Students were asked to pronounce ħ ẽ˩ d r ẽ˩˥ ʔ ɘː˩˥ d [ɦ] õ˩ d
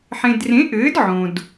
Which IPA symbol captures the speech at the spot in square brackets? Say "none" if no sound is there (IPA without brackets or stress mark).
ʕ